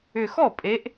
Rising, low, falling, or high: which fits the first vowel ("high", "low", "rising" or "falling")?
low